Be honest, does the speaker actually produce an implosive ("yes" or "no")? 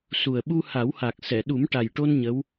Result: yes